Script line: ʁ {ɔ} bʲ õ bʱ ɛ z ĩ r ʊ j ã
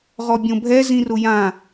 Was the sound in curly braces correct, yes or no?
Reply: yes